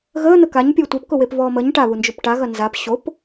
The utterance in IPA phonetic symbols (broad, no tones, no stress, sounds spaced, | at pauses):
ɣ əː n̪ ə k a ɲ pʲ əː tʷ ɛ p k ʊ w e p v ɔː m ə ɲ ʈ a β u n d͡ʒ ʊ p ʈ a ɣ ɐ n z a p ɕ o p